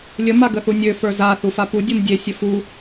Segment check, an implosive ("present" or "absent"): absent